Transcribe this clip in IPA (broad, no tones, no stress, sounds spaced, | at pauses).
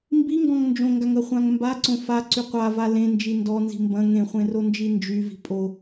m b i ŋ ɡ ɔ̃ ŋ n d͡ʒ õ ŋ ɡ a ŋ ɐ χʷ ã ŋ m b a ǀ õ f a ǀ y qʷ a v a l ẽ n d͡ʒ i n d ɔ n z i̤ m b ɐ̃ ŋ ẽ χʷ ẽ r o n d͡ʒ i n d͡ʒ y v i̤ pʼ o